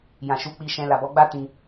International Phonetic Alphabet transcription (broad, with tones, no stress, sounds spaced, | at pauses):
j ã˨ ʃ u˨˦ k͡p i˧ ʃ ɛ̃˧ l a˨ b ɔ˨˦ ɡ͡b a˦ t ĩ˧